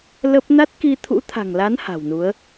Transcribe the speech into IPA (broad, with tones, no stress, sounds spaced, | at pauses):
l ə˦˥ p̚ n a˦˥ t̚ k i˧ t̪ʰ ṵ˧˥ t̪ʰ a̤˨˩ ŋ l a˨˦ n h a̤˨˩ w n u˨˦ ə̯